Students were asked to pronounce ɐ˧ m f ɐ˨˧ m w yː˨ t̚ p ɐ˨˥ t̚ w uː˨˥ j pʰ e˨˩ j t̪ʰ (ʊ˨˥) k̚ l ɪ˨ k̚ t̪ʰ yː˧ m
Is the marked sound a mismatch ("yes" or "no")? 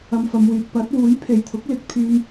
no